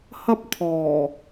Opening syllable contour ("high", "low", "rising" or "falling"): high